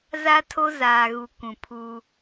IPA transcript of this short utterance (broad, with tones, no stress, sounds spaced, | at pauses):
z a˦ tʰ o˦ z aː˨ ɣ u˨ kʷ ũ˨ pʰ u˦